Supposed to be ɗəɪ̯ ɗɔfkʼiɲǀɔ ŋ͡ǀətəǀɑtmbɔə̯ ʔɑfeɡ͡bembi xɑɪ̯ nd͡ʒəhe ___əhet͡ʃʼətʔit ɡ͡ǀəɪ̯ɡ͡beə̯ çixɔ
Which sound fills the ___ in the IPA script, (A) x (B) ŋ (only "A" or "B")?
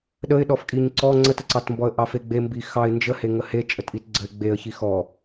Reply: B